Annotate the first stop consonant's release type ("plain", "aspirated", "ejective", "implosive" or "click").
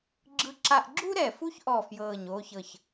click